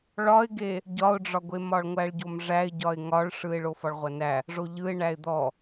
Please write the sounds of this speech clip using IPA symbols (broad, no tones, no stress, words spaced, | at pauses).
ɭɒɪ̯ɡe | ɟɒʊ̯ɖ͡ʐɒɡʷe mɒɭŋʷæɭɟomʐæɪ̯ ɟɒɪ̯ŋɒɭʂɯɪ̯ ɭofɒɭʁʷɐnæ | ʐoʎɯɪ̯ ɳæɪ̯d̪ɔ